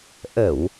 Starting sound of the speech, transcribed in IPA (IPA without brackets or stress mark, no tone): ʔ